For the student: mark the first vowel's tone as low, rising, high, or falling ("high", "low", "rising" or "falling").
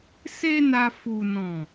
high